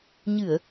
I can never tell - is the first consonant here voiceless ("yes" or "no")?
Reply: no